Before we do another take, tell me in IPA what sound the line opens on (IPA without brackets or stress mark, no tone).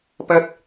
p